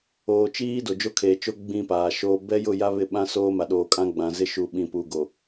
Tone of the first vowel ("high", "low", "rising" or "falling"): low